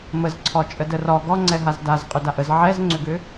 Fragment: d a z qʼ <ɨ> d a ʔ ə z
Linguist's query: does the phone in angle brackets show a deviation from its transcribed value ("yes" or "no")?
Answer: yes